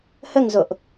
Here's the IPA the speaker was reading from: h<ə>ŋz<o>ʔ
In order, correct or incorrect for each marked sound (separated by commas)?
correct, correct